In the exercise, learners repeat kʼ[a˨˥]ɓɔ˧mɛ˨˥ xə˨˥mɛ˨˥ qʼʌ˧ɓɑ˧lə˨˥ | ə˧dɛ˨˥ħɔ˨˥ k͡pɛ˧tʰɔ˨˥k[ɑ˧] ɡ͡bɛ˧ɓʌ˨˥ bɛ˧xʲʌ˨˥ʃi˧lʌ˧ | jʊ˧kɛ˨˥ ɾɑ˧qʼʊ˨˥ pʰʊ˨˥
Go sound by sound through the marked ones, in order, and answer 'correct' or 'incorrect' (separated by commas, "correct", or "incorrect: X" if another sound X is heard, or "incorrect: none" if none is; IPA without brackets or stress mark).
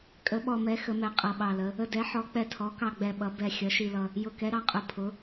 incorrect: ə˨˥, correct